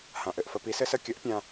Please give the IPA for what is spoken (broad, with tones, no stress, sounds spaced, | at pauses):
h ã˨ ʔ ɘ˨ ʔ f ə˧ p i˨˦ s ɘ˦ s ə˦ kʲ ə˨˦ ʔ pʲ ã˧